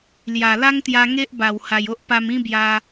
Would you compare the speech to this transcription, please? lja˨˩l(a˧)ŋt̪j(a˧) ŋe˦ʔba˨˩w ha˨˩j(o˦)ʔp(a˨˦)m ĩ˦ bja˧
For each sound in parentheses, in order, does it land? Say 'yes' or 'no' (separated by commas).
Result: no, yes, yes, no